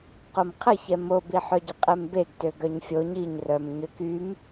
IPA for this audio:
q o m qʰ ə ç ɛ m o b i ħ œ ɟ ə qʼ ɛ m b e ɡ t ø ɡ œ ɲ fʲ o ɲ i ɲ r œ m ɲ ø k y m

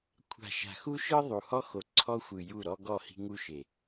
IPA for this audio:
kʷʰ a̤˨ ʃ a̤˨ x u˦ ʃ ɯ˦ ðˤ u˨ h ɔ˦ x o˨ ǀʰ ɔ˦ xʷ ɯ˨ j u˦˨ ɾ ɔ˦ ɡ ɔ˦˨ h i̤˦ ŋ u˦ ʃ e˨

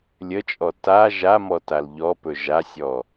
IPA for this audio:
lʲ ə t͡ʃʼ ɔ t a ʒ a m ɔ t a l ʎ ɔ p ɵ ʒ a sʲ ɔ

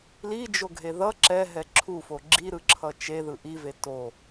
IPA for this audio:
l i d͡ʒ o ɡʱ e ð ʌ ǁ ɛ ɦ ɛ ǁʰ u f o ɡ͡ǁ i ɾ ɯ ǁʰ ʌ t͡ʃ e ð ɯ ʔ i v e t o

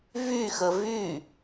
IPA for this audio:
v y x ə v y

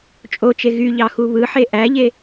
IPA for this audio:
t͡ʃʼ o t͡ʃ e ɣ y ʎ ɑ x u β ɯ ħ e ʔ æ ʎ e

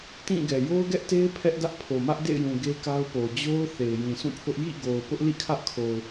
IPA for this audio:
t ĩ˦˨ ɡ ɛ˨ j o˦ ʊ̯ ɡ ɛ˦ ʔ t e˦ ɪ̯ pʰ ɛ˦ ʔ d ä˦ ʔ pʰ o˨ m ä˦ ʔ d ḛ˦˨ ɪ̯ j ũ˨ ɡ e˦ k a˦ ʊ̯ p o˨ d͡ʑ o˦ ʊ̯ θ e˨ ɪ̯ j ĩ˨ s ũ˦˨ pʰ ʊ˦ ʔ j ḭ˦˨ ɡ o˨ ʊ̯ p ʊ˦ ʔ l ḭ˦˨ kʰ ä˦ ʔ kʰ o˨ ʊ̯

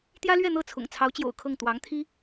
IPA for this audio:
t̪ j ä˥ l ɥ ɛ˥˧ n̪ ɤ˥˩ t͡sʰ ʊ̰˨˩ ŋ t͡sʰ ɑ˧˥ ʊ̯ t͡ɕ j o̰˨˩ ʊ̯ kʰ ɤ˥˩ ŋ t̪ w ɑ˧˥ ŋ t̪ʰ i˥

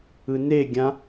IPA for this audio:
ɯ n e ɡʲ ã

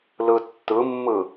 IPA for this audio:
l ɯ tː ɯ mː ɯ

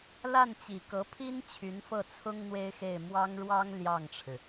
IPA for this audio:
l a˥˩ n t͡ɕ i˨˩ k ɤ˧˥ pʰ i˥ n t͡ɕʰ y˧˥ n f ɤ˥˩ t͡sʰ ʊ˥ ŋ n̪ w e˥ ɪ̯ x e˥˩ ɪ̯ m w ɑ˥ ŋ ɻ w ɑ˥ ŋ l j ɑ˥˩ ŋ ʈ͡ʂʰ ɻ̩˩

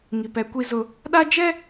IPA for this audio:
ŋ i˨ p ɛ˨˦ kʷ i˦ z ʊ˦ | ɗ a˦ d͡ʒ ɛ˦

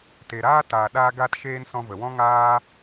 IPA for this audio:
t e˨ ɾ aː˦ t aː˨ ɗ aː˧ ɡ a˧ t ʃ eː˧ n s ɔ̃˧ v ə˨ w ɔ̃˦ ŋ aː˦

